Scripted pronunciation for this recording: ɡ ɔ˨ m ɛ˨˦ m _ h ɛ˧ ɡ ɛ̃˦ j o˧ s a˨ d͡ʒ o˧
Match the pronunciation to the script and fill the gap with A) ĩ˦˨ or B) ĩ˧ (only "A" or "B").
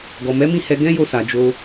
A